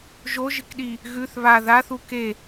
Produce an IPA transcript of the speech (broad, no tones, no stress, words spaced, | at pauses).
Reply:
ʒoʒɨkɗi | ɣʉθ βa ðaθu ke